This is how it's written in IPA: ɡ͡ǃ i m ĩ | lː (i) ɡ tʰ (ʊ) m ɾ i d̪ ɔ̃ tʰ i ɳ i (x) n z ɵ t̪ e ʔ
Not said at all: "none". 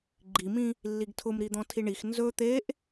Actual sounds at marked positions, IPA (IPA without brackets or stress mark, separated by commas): i, ʊ, x